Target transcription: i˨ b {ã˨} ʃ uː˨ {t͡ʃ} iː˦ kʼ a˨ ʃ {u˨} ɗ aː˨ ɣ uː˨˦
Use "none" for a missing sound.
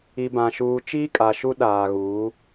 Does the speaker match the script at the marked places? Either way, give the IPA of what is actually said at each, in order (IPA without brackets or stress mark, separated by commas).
ã˨, t͡ʃ, u˦